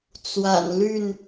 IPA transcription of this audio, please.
t͡s w a̰˨˩ n l y˥˨ n

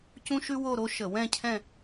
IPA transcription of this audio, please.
c ũ˥ ʃ ʉ˥ w o˥˧ ɾ o˥ ʃ ə˧˩˧ w ɛ̃˥˧ cʰ ɛ̃˥˧

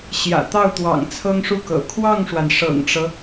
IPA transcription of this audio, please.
ɕ j ä̰˨˩ t̪ ɑ˥˩ ʊ̯ t̪ w ɑ̰˨˩ ŋ t͡sʰ ɤ˥ ŋ ʂ u˥˩ k ɤ̰˨˩ kʰ w ɑ˥˩ ŋ ʂ w a˩ n ʂ ɤ̰˨˩ ŋ ʈ͡ʂ ɤ˦

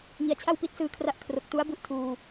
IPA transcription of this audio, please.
ŋ i˩˦ a̯ t͡ɕʰ a˥˩ w p i˦˥ t̚ s ɯː˧ kʰ r a˦˥ ʔ kʰ r o˨˩ k̚ t u˦˥ a̯ b u˦˥ ʔ tʰ uː˧

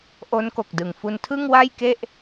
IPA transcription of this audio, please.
ʔ o˦˥ n k o˨˩ k̚ d ɯ˨˩ ŋ f u˧ n tʰ ɯ˥˩ ŋ w a˥˩ j k e˥˩ ʔ

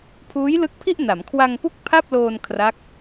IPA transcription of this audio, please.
pʰ uː˦˥ j l ɯ˦˥ k̚ pʰ i˥˩ ʔ n a˩˦ m kʰ w a˧ ŋ p u˥˩ k̚ pʰ a˥˩ p̚ l oː˧ n kʰ r a˦˥ k̚

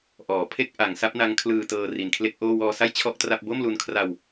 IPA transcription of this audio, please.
ʔ ɔː˩˦ pʰ e˥˩ k̚ ʔ a˩˦ ŋ s a˦˥ p̚ n a˦˥ ŋ kʰ l ɯː˧ t ɤː˧ r i˨˩ n kʰ l e˥˩ k̚ ʔ oː˥˩ w ɔː˧ s a˥˩ j t͡ɕʰ ɔ˥˩ ʔ t r a˥˩ p̚ b o˥˩ m l u˧ n kʰ r a˧ w

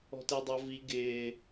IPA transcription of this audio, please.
ɔ̤ t e dˤ ʌ v i ɡ ɪː

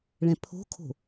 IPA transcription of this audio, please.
ɭ ɛ̃ pʰ o̤ kʰ o̤

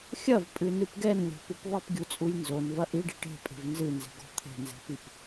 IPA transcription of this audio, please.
xʲ ɐ v pʼ ɨ n ɨ p ɡ ɛ n lʲ ɔ̤ p u p ðˤ i p ɡʲ u t͡sʼ u j n z o n v ɐ ʔ i ɖ i ʈ e̤ pʼ e̤ v n z ɨ n z e̤ ɡ ɔ̤ t̪ʰ e̤ n z e̤ p i p

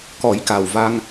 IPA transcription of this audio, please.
k ɔ˨˩˦ j k a˨˩ w v a˧ ŋ

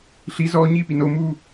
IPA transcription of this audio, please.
ɬ i z ɔː ɲ iː p i n o m uː

